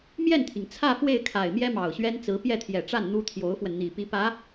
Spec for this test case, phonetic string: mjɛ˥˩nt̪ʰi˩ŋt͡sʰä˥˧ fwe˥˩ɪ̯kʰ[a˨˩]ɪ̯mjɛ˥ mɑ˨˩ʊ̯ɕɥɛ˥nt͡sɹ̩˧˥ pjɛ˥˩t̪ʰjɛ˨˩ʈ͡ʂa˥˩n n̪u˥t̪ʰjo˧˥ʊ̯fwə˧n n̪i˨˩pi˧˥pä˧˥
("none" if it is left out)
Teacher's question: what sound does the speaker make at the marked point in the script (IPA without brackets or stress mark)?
a˨˩